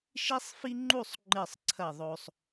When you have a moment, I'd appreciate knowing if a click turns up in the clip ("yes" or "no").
yes